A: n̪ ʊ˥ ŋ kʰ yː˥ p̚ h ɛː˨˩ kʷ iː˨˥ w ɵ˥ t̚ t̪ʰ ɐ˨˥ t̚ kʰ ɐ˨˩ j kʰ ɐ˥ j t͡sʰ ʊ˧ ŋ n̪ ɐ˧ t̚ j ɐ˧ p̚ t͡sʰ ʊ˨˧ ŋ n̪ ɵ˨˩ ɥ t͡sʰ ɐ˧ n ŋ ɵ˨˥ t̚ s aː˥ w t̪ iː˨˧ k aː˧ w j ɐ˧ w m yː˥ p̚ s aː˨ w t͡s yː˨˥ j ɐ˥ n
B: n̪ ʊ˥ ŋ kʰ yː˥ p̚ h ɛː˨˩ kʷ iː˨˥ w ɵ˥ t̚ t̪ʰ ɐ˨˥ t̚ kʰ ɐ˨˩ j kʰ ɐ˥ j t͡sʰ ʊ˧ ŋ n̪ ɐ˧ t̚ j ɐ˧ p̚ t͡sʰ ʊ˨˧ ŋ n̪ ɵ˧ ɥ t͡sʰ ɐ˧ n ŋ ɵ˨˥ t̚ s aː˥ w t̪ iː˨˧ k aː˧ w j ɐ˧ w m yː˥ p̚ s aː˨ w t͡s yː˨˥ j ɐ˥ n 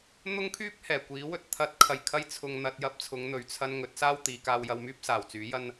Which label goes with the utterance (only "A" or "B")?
A